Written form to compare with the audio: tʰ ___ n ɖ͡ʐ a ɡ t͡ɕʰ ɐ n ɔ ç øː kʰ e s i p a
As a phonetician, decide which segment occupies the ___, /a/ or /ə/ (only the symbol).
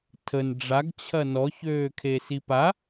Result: ə